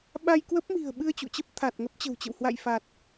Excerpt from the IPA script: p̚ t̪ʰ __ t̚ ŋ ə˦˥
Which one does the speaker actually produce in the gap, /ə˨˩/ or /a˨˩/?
a˨˩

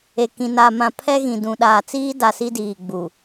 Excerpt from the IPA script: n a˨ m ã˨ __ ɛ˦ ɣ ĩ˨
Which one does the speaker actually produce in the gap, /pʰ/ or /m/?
pʰ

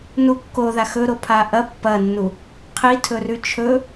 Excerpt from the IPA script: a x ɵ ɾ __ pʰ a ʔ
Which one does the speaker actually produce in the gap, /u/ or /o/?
o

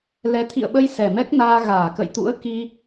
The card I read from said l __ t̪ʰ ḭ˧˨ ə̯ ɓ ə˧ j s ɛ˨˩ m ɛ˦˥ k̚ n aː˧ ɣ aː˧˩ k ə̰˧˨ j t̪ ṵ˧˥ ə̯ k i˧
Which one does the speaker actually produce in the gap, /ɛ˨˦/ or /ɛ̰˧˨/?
ɛ˨˦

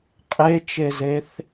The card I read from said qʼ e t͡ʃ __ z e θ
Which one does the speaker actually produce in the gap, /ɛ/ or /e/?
e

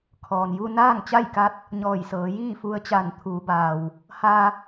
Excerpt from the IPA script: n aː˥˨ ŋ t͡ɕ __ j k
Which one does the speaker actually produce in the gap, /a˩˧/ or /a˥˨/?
a˥˨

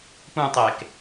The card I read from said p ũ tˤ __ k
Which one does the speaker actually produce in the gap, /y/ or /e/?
e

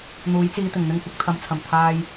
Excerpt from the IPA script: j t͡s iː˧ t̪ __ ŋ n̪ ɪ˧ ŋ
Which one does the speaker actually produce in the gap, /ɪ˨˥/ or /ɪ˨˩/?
ɪ˨˩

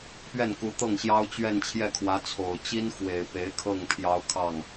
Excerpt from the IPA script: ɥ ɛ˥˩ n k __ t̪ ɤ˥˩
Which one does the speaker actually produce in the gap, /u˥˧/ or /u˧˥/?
u˧˥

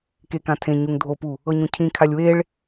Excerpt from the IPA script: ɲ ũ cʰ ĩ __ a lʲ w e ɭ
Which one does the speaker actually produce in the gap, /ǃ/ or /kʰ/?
kʰ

